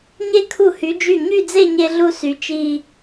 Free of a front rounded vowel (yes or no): no